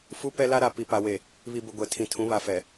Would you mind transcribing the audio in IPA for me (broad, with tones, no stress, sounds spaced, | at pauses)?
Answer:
f u˦ p ɛ˦ l a˦ ɾ a˨ p i˨ p a˨ w e˨ | β i˨ b ʊ˨ ɡʷ ɛ˨ tʰ ĩ˨ tʰ ũ˨˦ β a˨ f ɛ˨